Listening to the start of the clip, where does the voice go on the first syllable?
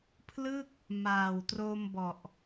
falling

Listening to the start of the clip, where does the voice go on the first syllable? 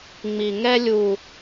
low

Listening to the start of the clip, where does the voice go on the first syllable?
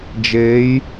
rising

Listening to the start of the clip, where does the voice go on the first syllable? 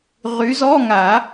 rising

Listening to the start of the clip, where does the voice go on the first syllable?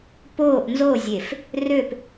falling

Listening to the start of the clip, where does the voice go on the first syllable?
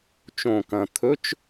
low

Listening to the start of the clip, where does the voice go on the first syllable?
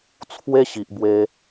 high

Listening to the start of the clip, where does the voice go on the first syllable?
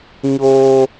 high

